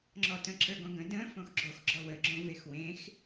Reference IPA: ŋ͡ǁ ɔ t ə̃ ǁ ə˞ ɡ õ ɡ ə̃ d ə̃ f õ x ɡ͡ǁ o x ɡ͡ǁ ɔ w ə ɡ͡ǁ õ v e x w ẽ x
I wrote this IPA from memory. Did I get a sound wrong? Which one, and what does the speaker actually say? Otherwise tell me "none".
none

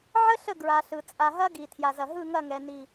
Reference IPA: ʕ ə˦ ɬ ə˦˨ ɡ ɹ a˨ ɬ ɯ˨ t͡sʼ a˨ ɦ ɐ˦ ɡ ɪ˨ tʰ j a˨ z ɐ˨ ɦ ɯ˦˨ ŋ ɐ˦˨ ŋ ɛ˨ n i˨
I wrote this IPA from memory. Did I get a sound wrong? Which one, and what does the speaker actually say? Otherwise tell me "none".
ɪ˨ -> i˨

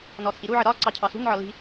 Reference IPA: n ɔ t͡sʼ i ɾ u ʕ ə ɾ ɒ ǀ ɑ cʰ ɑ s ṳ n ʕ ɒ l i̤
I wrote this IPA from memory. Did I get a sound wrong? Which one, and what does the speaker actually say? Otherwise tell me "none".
none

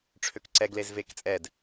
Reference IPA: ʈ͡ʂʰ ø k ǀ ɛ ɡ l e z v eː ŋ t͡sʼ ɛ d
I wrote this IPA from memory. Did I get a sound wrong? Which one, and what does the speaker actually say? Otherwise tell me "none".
ŋ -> k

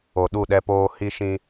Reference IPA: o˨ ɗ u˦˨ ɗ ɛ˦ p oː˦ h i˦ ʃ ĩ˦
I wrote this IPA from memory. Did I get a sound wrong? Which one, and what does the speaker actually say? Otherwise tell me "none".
none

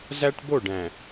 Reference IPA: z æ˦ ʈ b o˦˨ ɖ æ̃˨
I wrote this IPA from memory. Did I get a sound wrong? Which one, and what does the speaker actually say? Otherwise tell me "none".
none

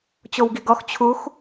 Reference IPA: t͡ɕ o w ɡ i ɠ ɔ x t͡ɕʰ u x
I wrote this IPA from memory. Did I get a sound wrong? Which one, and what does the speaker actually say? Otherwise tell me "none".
ɠ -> ɡ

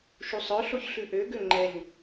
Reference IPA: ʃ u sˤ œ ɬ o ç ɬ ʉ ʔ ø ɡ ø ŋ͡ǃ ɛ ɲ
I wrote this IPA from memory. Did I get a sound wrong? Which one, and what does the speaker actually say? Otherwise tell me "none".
none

